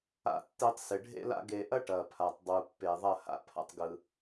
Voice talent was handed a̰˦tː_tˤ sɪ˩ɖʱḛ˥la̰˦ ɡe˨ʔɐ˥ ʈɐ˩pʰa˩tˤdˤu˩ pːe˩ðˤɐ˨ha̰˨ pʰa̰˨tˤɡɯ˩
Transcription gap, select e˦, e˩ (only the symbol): e˦